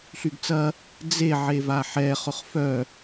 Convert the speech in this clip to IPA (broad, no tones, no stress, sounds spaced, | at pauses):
ɬ y ɡ t͡s ɐ | d͡z e ʕ e v a ħ ɛ χ ʊ χ f œ